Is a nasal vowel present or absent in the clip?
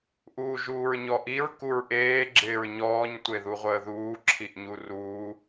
absent